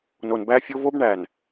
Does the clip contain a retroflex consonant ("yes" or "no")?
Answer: yes